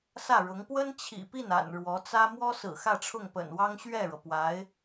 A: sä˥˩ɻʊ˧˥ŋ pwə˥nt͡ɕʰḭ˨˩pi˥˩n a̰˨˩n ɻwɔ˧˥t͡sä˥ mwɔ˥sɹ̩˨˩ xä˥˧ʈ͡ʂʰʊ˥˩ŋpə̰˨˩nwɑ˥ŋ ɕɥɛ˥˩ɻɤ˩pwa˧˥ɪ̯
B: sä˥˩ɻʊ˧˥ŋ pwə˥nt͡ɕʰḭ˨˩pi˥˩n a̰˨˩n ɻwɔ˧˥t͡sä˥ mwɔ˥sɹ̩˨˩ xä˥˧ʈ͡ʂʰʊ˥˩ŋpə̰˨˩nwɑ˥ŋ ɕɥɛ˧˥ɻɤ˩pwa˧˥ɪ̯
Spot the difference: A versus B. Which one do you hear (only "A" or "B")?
A